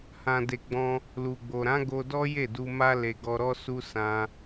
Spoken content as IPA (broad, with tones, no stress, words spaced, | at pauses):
hã˨de˨ɡ͡bɔ̃˧ | lu˨ɡ͡bo˨ ɾã˨˦ ɡo˧dɔ˦ je˦˨du˧ma˦ le˧ ɡɔ˧ɾɔ˦su˦ sã˦